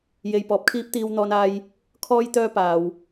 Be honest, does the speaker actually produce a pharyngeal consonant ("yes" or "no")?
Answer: no